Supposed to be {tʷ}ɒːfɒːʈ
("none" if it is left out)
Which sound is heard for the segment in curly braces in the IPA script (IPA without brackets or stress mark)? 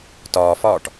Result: t